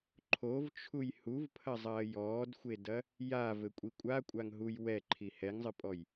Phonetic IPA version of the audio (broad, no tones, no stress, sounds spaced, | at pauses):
ǃʰ o v t͡ʃʰ u j h u v pʰ ɐ zˤ ɐː j ɔː d xʷ e d ɐ | j a v ɘ kʷʼ i kʷʼ a kʷʼ a ŋ ɦ u j w ɛ ǃʰ i h ɛ ŋ zˤ ɨ pʼ ɔ j